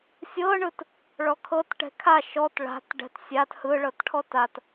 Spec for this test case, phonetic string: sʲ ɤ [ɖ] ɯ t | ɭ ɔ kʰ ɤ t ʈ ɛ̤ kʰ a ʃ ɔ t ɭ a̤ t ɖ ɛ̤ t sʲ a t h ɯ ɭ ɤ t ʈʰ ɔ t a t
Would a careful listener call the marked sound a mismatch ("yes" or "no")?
yes